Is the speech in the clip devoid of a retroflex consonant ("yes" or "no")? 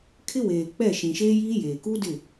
yes